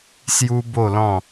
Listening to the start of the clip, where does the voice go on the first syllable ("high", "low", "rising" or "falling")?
high